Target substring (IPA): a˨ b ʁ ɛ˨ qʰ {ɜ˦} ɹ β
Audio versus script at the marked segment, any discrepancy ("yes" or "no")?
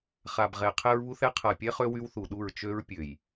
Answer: yes